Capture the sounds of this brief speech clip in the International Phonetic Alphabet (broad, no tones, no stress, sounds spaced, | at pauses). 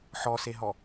ħ ɔ s e ɦ ɔ